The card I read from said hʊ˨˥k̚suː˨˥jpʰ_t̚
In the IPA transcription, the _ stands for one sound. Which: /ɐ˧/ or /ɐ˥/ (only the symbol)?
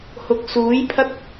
ɐ˥